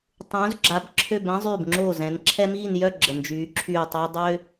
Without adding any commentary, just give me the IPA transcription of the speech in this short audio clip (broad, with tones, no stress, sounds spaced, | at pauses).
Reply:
tˤ ũ˩˧ z ɡ͡ǁ a˩˧ b ǁʰ ø˧˩ b ɛ̃˦ zˤ yː˧˩ b ŋ͡ǁ oː˧˩ z ɛ̃˩˧ n ǁʰ ɛ˦ m iː˥˩ n j œ˥˩ ɡ͡ǁ ə˩ n d͡ʒ yː˩˧ ǁʰ yː˧˩ tˤ œ˦ j dˤ ø˦